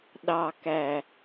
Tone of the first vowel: low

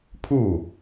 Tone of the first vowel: falling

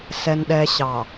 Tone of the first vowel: low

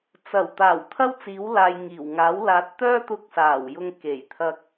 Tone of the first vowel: low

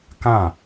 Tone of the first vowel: falling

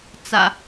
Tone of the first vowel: low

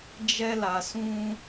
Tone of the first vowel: high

